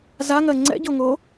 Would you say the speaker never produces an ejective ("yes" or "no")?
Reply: yes